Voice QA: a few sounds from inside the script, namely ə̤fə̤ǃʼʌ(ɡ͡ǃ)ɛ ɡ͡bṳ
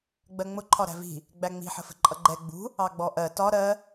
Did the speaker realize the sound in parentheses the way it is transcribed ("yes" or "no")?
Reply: yes